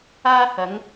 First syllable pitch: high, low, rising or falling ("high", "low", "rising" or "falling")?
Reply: high